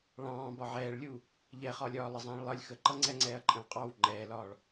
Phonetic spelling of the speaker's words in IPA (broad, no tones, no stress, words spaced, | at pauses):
ɭɑ̃ː bɒʕɛːɭlʲuː | ʎɛχɒlʲɒː lˠəzˤɛ̃ːɭlˠʌlʲ xəǃʌ ŋ͡ǀɛŋ͡ǀɛːɐ̯ǃʼə̃wqʼɑw ŋ͡ǃɛːlɒːɭ